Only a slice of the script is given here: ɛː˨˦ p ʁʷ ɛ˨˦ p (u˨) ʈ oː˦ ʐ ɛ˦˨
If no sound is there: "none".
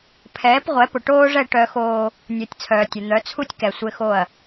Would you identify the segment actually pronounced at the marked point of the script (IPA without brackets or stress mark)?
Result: ʊ˨